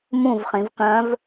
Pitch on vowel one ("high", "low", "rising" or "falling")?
falling